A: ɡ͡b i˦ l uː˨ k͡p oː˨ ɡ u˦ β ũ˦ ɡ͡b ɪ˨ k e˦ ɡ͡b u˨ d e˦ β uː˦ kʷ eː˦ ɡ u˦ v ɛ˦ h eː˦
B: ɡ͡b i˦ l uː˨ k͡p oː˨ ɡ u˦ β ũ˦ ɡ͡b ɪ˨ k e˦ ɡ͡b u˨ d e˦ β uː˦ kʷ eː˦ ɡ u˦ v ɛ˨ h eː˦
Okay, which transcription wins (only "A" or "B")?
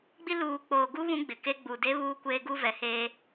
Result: B